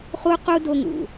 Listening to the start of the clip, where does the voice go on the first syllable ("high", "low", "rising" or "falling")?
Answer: high